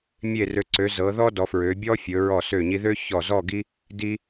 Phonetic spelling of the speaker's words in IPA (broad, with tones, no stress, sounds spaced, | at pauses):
mʲ e˧˩ r ø˩˧ ǀ ø˩˧ z ɤ˩˧ ð ɔ˥ d ɔ˩˧ f ɹ ø˩˧ bʲ ɔ˥ fʲ ɵ˩˧ ɹ ɔ˧˩ s ø˧˩ ɲ i˧ ð ø˥ ç ɔ˧˩ z ɔ˥˧ ɡ i˥ | d i˧